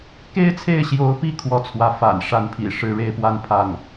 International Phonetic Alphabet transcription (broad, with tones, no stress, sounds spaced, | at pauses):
k e˥ ɪ̯ t͡sʰ e˥˩ ɪ̯ ɕ j o˧˥ ʊ̯ p i˥˧ kʰ w ɔ˥˩ t͡sʰ w ä˧˥ f a̰˨˩ n ʂ a˧˥ n pʰ ḭ˨˩ ʂ ɻ̩˥˧ ɻ e˥˧ ɪ̯ p w a˥˧ n pʰ a˥˩ n